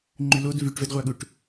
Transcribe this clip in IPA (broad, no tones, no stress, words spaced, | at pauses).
ŋ͡ǃylod vyʈvɛdʁʷaɠuʈ